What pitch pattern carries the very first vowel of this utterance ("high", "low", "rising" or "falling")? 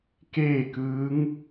falling